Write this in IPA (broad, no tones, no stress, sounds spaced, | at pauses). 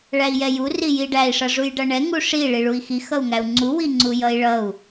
ɭ æ i̯ j ɛ j u r i j i ɖ æ i̯ ʂ ʌ ʐ u j ɖ ʌ ɳ ɛ ŋ u ʂ i ɭ i ɭ u i̯ x i x ʌ u̯ ŋ æ u̯ ŋ͡ǀ u w i ŋ͡ǀ u j ʌ i̯ ɭ ʌ u̯